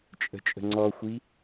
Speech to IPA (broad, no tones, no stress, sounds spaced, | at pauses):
t͡ʃʼ ə̤ t͡ʃʼ ə̤ ŋ͡ǀ ɔ xʷ i